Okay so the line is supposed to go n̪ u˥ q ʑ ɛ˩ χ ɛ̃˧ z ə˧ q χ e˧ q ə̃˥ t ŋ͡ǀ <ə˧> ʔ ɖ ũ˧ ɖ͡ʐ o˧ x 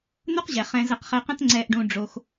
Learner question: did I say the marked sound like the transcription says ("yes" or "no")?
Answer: no